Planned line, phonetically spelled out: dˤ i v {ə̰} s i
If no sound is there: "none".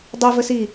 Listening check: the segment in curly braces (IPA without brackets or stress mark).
ə